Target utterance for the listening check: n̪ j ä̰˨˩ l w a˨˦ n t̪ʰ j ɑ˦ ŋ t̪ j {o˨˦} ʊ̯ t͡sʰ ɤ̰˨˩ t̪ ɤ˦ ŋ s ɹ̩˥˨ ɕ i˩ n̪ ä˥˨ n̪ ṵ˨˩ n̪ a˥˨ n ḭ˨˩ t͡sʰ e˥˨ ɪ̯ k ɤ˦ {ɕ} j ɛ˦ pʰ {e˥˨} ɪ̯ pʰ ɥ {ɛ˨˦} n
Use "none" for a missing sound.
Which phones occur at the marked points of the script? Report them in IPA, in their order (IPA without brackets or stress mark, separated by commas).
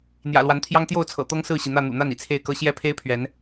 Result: o˥˨, ɕ, e˦, ɛ˨˦